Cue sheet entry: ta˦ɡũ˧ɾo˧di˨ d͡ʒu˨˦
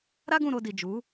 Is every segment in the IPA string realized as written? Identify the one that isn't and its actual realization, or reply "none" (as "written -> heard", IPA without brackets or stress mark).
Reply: t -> ɾ